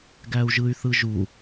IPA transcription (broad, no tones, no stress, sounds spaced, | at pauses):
ɡ æ u̯ ʒ ɯ y̯ θ ɯ ʒ u